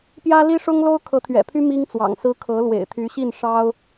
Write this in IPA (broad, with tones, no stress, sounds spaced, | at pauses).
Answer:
p j ä˥ l i˥ ʂ ʊ˥ ŋ l o˥ ʊ̯ kʰ ɤ˧˥ t̪ʰ ɥ ɛ̰˨˩ pʰ y˥ m i˥ ŋ t͡s w ɑ̰˨˩ ŋ s ɹ̩˥ kʰ ɤ˧˥ l w ḛ˨˩ ɪ̯ t̪ʰ y˧˥ ɕ i˥˩ n ʂ ɑ˥ ʊ̯